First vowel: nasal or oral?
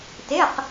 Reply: oral